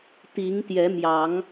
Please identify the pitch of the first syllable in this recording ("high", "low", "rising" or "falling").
rising